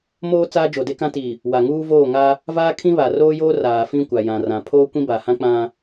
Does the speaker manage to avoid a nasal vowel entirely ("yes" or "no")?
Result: no